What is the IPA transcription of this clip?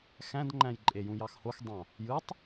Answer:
x æ̃ d ŋ͡ǃ æ̃ j ǃʼ e j ũ j ɑ x h o x dˤ ɑ̃ | j ɯ tˤ

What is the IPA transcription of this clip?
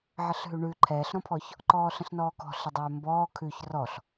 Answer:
ʕ ə ɬ ɦ ʉ ɳ ʉ ǃʰ ɛː ɬ ɾ ɔ̃ pʰ ɔ ç | ǃ ɔː ɬ ə̃ ɬ n ɔː k ɔ̤ ɬ ə dˤ øː m b ɔː kʰ ʉ ç r ɔ ɬ

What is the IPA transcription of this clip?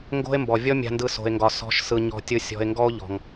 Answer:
ŋ ɡ o̤˦ e̯ m b ɔ˨ vʲ ɔ˦ mʲ a̤˨ n d ɯ˨ s o̤˨ e̯ ŋ ɡ ɒ˨ s ɔ̤˨˦ ʃ s ɯ˨ ɲ ɔ̤˨ tʲ ɯ˨˦ sʲ ɔ̤˨ e̯ ŋ ɡ ɔ˦ o̯ ʎ ɔ̤˨ ŋ

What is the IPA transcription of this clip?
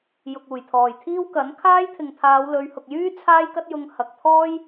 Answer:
j ʊ˨ k̚ uː˨˩ j t̪ʰ ɔː˨˩ j t̪ʰ iː˥ w k ɐ˨˥ n kʰ aː˥ j t̪ʰ ɪ˨ ŋ t̪ʰ aː˨˧ w l ɵ˨˧ ɥ h ʊ˨ k̚ j yː˥ t͡sʰ aː˥ j k ɐ˥ t̚ j ʊ˧ ŋ h ɐ˨ k̚ t̪ʰ ɔː˥ j

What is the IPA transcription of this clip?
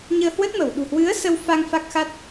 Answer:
ɲ əː˧ h w ə˦˥ t̚ m ə˧˩ w ɗ ṳ˨˩ h w ɨ˨˦ ə̯ s ə˧ w f a˧ ŋ f a˦˥ k̚ x a˦˥ t̚

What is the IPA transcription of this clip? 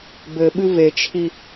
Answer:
b ɘ ɓ ɨ v e t͡ʃʰ i

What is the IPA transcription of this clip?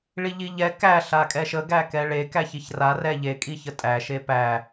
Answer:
ɭ i ʎ i ʎ ɛ k æ ɬ a kʼ ɛ ʃ ə ɡ æ k ɛ ɭ e k æ ç i ç r a r ɛ ʎ e kʼ i ç ə tʼ æ ʃ e p æ

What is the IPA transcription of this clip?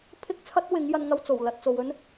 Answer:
pʰ ɪ˥ k̚ t͡sʰ ɐ˥ t̚ w ɪ˨˧ ŋ j ɐ˥ n ŋ ɐ˥ w t͡s o˨˩ w l ɐ˧ t̚ t͡s o˨ w ɵ˥ n

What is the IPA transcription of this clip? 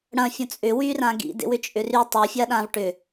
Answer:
ɽ ɐ̃ fʲ õ t͡sʼ ʏ w y r ã ɡ ḭ d ḛ w ʏ t͡ʃʼ ʏ r y tˤ o fʲ a ɗ ãː v ʈ ʏ

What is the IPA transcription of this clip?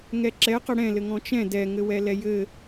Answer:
ŋ ɛ ǁ ɛ q ə ɽ ɛ̃ l ɘ ŋ ɔ̃ t͡ʃ ɛ̃ d ɛ ŋ ɘ w ɛ l ɛ j ɘ

